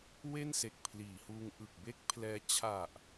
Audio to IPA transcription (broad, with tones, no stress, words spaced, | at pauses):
we˥˩nse˨˩k̚pʰliː˩˦huː˧ŋ ʔɯ˨˩k̚be˥˩k̚pʰlɛː˧ t͡ɕʰa˨˩ʔ